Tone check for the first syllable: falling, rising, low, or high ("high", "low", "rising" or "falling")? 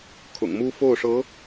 low